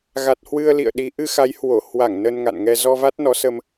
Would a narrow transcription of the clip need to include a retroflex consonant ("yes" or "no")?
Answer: no